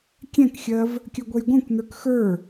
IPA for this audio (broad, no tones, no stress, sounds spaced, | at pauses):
kʲ ɛ̃ k xʲ ɜ v | kʲ œ ɡʷ ɛ j ɡʷ ɛ̃ kʷ n ə˞ k x ə˞